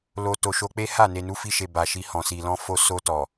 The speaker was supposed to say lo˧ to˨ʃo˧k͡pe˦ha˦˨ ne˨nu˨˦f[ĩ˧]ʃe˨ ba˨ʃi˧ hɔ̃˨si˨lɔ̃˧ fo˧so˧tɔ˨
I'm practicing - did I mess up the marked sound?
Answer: yes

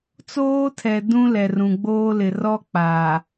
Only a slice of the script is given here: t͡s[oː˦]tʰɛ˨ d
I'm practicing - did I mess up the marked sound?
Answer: no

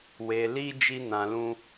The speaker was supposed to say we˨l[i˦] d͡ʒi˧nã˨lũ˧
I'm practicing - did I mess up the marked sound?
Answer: yes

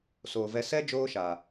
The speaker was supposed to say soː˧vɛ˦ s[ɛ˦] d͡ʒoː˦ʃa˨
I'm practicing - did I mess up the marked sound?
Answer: no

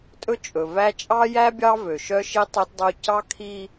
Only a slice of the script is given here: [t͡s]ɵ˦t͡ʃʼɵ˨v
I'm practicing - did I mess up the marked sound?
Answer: yes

